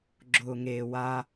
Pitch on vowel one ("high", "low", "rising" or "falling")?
low